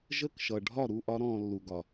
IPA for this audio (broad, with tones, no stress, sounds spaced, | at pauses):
ʒ ə˦˨ k ʃ ʌ˨ ɖʱ ɒ˦˨ ɾ u˦˨ ʔ ɒ˦ ɾ ɔ̃ː˧ lː u˨ ɡ ɒ˨